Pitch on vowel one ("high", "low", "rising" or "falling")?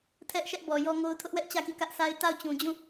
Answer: high